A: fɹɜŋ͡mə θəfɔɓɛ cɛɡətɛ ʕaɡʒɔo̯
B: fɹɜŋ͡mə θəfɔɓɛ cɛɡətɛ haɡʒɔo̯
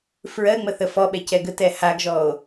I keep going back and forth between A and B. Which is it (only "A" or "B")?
B